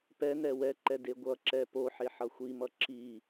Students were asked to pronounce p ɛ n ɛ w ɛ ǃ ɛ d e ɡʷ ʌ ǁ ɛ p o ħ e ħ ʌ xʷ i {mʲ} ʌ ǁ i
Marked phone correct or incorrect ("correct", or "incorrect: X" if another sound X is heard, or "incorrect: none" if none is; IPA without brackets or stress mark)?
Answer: incorrect: m